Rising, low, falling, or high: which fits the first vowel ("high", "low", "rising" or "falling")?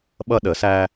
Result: high